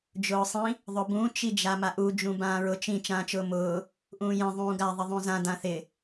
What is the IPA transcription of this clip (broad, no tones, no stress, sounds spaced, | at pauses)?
d͡ʒ ʊː sˤ ĩ | ðˤ ʊ b ũ t͡ʃ i d͡ʒ a m a ʔ u d͡ʒ ũ b ãː ɹ ʊ t͡ʃ ĩ t͡ʃ ãː t͡ʃ ʊː m ʊː | ʔ ũː j ẽ ðˤ ũː ɡ a ðˤ ɪ ðˤ ũ z ã d ã θ ɪ